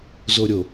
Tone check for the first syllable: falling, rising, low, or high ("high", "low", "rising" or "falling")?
low